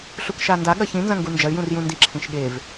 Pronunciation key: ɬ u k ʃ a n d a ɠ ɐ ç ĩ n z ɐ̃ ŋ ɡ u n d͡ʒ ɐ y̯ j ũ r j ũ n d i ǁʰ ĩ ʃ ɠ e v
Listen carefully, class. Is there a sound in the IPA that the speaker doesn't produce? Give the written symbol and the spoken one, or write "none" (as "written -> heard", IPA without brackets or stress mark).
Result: none